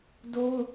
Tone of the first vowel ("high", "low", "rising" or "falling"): high